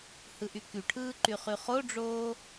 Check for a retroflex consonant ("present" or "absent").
present